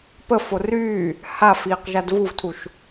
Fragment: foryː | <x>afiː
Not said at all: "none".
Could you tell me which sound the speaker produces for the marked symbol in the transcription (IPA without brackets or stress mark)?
h